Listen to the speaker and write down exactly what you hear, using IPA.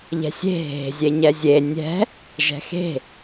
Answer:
ʎ ɛ̤ sʲ e̤ ɦ e̤ zʲ e ɲ ɛ zʲ e nʲ ɛ̤ | ʒ ɛ̤ x e̤

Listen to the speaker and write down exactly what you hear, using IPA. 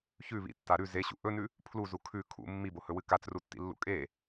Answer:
ç ʉ β ḭ tː a ɾ ʉ z e ɕ ṵ ʔ ɵ n ʉ | pʰ l u z u kʰ ʉ kʰ ṵ mː i b o h ɵ w ɨ k a t͡s r u tː ḭ lː ṵ kʼ e

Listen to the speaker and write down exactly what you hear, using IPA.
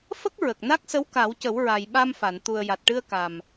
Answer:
f ə˦˥ k̚ ɹ ə˨˩ k̚ n a˦˥ k̚ s ə˧˥ w k a˨˩˦ w c ə˨˩˦ w ɹ a˨˩ j ɓ a˧ m f a˨˩˨ n t̪ u˨˩ ə̯ j a˨˩ t̚ ʈ ɨ˧ ə̯ k a˨˩ m

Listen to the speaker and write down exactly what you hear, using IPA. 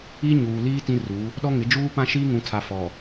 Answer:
i˦ ɲ uː˨ l iː˦ t ĩ˦ r u˨˦ | ɗ ɔ˦ ŋ ɪ˨˦ d͡ʒ uː˦ p ã˦ ʃ iː˦ ŋ ũ˨ tʰ a˨ f ɔ˨

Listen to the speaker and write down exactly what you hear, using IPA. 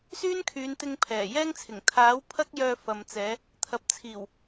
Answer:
s yː˥ n kʰ yː˨˧ n t̪ ɪ˧ ŋ pʰ ɛː˨˩ j ɛː˥ ŋ t͡sʰ ɪ˨˩ ŋ t̪ʰ aː˨˥ w pʰ ɐ˥ k̚ j œː˧ f ɐ˨ m t͡s ɛː˨˧ | t̪ʰ ɐ˨ p̚ t͡sʰ iː˨˩ w

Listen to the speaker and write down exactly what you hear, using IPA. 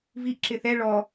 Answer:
v i ʔ ǁ ɪ θ ɛ ɭ ɔ

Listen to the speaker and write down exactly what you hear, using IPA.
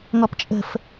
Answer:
ŋ ɔ p t͡ʃʼ ə̤ f

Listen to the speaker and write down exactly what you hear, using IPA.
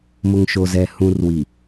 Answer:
m ʊ˨ ŋ ʃ o˨ z ɛ˨ h ũ˨ r w i˨

